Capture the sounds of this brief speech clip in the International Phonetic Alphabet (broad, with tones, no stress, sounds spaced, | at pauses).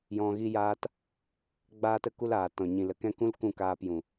j ɔ̃˧ ɣ i˦ j aː˦ t | ɡ͡b aː˦ t ə˦ k u˦ l aː˨ t ɔ̃˨ ɲ ĩ˨ l ə˨ k ɛ̃˦ k ũ˦ l k ũ˦˨ k aː˧ p j ũ˨